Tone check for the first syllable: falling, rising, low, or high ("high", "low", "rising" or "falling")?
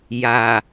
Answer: low